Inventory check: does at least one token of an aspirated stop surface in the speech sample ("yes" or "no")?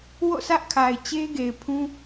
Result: yes